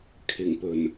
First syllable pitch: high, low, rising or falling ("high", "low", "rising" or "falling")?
low